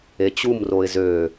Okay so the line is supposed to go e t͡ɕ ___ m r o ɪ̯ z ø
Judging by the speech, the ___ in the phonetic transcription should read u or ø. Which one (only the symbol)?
u